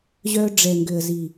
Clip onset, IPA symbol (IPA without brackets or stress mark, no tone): ʑ